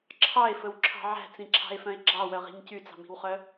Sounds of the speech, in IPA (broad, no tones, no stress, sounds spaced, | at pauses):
ǁʰ ɑ e̯ f ɵ w ǁʰ ɑ̤ ʕ æ̤ t͡s ĩ ǁʰ ɑ̤ e̯ f œ̃ e̯ ɡ͡ǁ ɑ w œ ʁ i̤ ɲ c y t͡s ɑ̤ m i̤ w χ œ